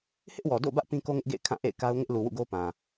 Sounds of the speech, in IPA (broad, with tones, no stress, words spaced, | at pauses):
hɪ˦ʔwɔ˨do̰˦˨bä˦ʔ pĩ˦ko˦ŋɪ˦ʔɡḛ˦˨ɪ̯ kʰã˦˨ʔḛ˦˨ɪ̯ka˦ʊ̯ ŋɪ˦ʔlu˨wṵ˦˨ɡo˦ pã˨